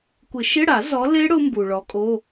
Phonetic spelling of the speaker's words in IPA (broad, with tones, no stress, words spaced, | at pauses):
kʷɪ˨˩˦ʃɪ˧˥˧ɽa˨˩˦ zɔ˨˦le˦˥ ɽʊ˦˥ mbu˩ɭɔ˨˦kʼo˧˥˧